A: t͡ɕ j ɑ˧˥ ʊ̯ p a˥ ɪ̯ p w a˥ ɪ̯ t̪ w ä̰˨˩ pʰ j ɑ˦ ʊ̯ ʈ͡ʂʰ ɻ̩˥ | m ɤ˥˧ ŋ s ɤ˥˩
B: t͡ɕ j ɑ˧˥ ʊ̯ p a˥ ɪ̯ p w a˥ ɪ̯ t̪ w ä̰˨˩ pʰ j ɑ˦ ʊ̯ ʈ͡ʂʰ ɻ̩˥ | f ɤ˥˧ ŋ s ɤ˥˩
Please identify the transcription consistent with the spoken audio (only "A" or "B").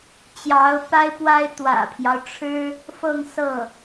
B